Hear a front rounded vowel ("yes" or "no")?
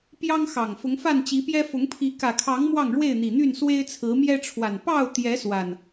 yes